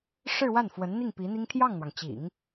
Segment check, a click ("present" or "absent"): absent